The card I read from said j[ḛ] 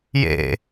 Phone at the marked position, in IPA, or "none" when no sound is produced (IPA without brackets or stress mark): ḛ